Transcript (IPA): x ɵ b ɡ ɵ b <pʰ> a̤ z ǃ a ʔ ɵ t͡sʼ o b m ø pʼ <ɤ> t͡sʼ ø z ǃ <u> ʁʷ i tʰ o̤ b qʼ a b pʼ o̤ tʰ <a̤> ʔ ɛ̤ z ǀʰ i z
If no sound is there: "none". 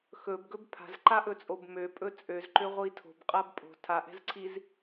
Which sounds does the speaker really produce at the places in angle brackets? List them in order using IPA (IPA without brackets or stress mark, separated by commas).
pʰ, ɵ, ø, a